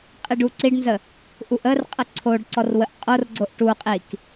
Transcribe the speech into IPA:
qʼ i ɖ u ǀ i ɖ n z ə | ʔ u ʔ ə r qʼ ə ǀʰ o ɖ ǀ ɔ r w ə ʔ qʼ o r ɡ͡ǀ o ʔ ʈ u qʼ i k

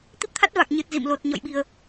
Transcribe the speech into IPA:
t̪ i˦˥ p̚ t̪ʰ a˦˥ t̚ v a˨˩ k̚ ɲ ɨ˨˩ t̚ z ḭ˧˨ m l o˨˩ t̚ ɲ ɔ̰˧˨ j ɓ i˨˩ ə̯

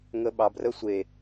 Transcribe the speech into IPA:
ŋ ə ɓ ɑ b r ə sʷ e

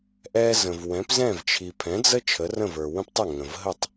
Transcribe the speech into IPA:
ʔ ɛ˧ z ə̃˩ v w ɛ̃˩˥ p z ɛ̃˥˩ v t͡ʃʰ i˩ pʰ ɛ̃˩˥ d͡z ə˥ t͡ʃʰ ə˩˥ r ə̃˥˩ v ə˞˩ w ə̃˥ p tˤ ə˥˩ ŋ ə̃˩ v ɦ ə˥˩ tˤ

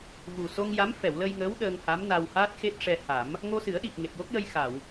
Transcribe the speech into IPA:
v u˨˩ s o˧ ŋ j a˧˥ m f ɛ˨˩˨ w l ə˧ j ŋ əː˧˥ w ɗ əː˧ ŋ h a˧˥ m n a˧ w h aː˦˥ t̚ x e˦˥ t̚ ʂ ɛ˧ h a˨˩˦ m | ŋ o˧ s ɨ˨˩˦ ə̯ ɗ i˨˩ p̚ ŋ e˨˩ p̚ j o˦˥ k̚ j ə˧ j x a˨˩˨ w

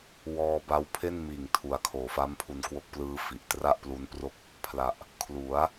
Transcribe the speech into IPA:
w ɔː˧ b a˦˥ w pʰ e˥˩ n m iː˨˩ ŋ tʰ u˨˩ a̯ kʰ oː˨˩ f a˦˥ m pʰ u˧ n k w o˦˥ k̚ p l ɯː˦˥ f i˨˩ ʔ t r a˥˩ ʔ p l u˦˥ n p r o˥˩ k̚ | pʰ l a˨˩ ʔ | kʰ l u˩˦ a̯

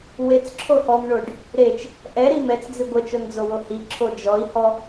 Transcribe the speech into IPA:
w e t͡s ǁʰ o h ɔ m ɳ o ɖ | ɾ e t͡ʃ | ʔ ɛ ɾ i m ɛ t͡s d͡z i ɡʷ ə t͡ʃ o n d͡z o w o h i ǁʰ o d͡ʒ ɔ i̯ h ɔ

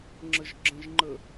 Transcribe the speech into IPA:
ŋ͡ǁ ə ʒ ɡ͡ǁ ə̃ ʒ ŋ͡ǃ ə

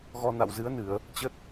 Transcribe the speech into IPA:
ɣ ɔ˧ n a̰˧˨ w z ɨ˨˦ ə̯ n ɨ˧˩˨ ə̯ | t͡ɕ ə˦˥ t̚

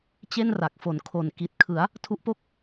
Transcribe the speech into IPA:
t͡ɕ e˥˩ n r a˨˩ k̚ f o˨˩ n kʰ o˨˩ n k i˨˩ t̚ kʰ ɯ˩˦ a̯ | tʰ u˦˥ ʔ p o˥˩ k̚

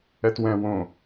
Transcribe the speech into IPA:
ɛ t w ɛ̃ w õ

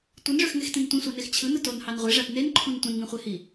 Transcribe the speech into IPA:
tʷ ɯ n ʐ ø x ŋ e x t ĩ n tʷ ĩ sʷ ɑ n e x t͡ɕʰ ɯ n ɯ t o n h ɑ n ʁʷ e ʐ æ p n e n ǃʰ ũ n tʷ ĩ n ŋ ĩ χʷ e h i

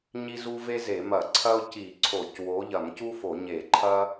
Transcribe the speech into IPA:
ɲ i˥ z u˥ v e˥ z e˧˩˧ m ɐ˧˩˧ ǀʰ ɐ˥ ʊ̯ c i˧˩˧ ǀʰ o˧˩˧ c w o˨˥ ʎ ɐ˧˩˧ m c u˥ f o˧˩˧ ɲ e˧˩˧ ǃʰ ɐ˥

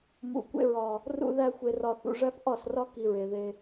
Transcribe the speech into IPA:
m ṵ˨ kʷ ḛ˧ ɹ ɒ˨ | r ṵ˧ ð æ˧ xʷ e˨ r ɒ˨ θ ṵ˨ ʐ æ˦ p ʔ ɒ˦˨ s r ɒ˦ k i˧ ɹ e˨ ð e˧

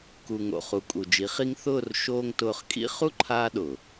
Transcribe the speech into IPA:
k u˨ ŋ o̰˨ χ u˨ kʼ u˨ d͡ʒ i˨˦ χ i˦ ŋ θ ʊː˦˨ r ʃ oː˦ ŋ t ʊː˧ χ kʼ ḭ˦ χ u˦ ǃʰ aː˧ ɗ ʊː˨

